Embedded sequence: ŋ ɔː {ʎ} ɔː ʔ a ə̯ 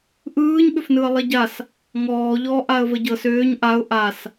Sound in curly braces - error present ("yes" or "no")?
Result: no